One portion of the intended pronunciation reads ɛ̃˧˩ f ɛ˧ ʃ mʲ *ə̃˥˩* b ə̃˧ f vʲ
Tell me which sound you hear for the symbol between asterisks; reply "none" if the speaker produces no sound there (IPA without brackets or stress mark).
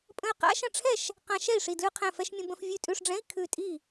ə̃˧